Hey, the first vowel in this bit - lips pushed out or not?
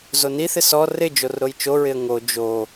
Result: yes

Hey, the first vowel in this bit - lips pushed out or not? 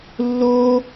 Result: yes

